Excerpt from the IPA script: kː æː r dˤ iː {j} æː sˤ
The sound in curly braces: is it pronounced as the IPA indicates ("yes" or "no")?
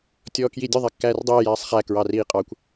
yes